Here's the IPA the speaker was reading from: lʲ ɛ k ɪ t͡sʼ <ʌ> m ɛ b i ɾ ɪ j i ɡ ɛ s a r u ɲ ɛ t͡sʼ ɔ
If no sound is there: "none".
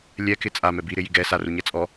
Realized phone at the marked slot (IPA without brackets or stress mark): a